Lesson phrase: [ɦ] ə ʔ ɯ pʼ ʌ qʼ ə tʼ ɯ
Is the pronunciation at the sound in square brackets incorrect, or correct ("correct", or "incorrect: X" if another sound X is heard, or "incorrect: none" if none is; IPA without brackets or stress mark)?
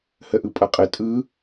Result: incorrect: h